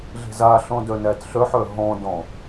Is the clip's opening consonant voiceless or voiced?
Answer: voiced